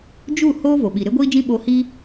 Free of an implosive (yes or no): no